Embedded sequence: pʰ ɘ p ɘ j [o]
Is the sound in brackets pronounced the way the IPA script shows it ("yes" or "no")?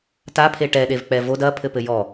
no